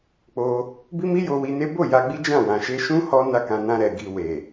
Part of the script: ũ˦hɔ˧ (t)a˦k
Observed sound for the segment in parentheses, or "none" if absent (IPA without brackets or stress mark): n